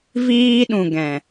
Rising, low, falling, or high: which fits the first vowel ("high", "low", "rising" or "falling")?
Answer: high